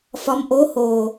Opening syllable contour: rising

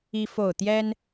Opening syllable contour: high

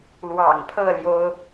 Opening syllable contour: low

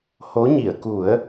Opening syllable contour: rising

